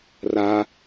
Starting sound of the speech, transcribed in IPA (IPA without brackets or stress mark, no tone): r